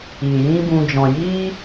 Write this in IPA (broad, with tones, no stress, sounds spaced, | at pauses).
i˨ j ĩ˦ b ũ˧ d͡ʒ ɔ̃˨ j iː˦